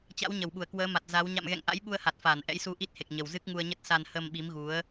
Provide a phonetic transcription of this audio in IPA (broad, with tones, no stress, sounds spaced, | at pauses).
t͡ɕ a̰˧˥ w ɲ ə˧˩ w ɓ u˧˩ ə̯ k w əː˨˦ m a˨˩ t̚ z a˨˦ w ɲ a̰˧˨ m ɣ ɛ̰˧˨ ŋ ʔ a̰˧˥ j ɓ u˧ ə̯ h a˨˩ t̚ f aː˧˩ n ʔ ɛ̰˧˥ j s u˧ ʔ i˦˥ t̚ h e˨˩ k̚ ɲ ə˨˩ w z ɨ˦˥ k̚ ŋ u˧ ə̯ ɲ ə˦˥ t̚ s a˧ n h ə˧ m ɓ i˨˦ m ɣ u˨˦ ə̯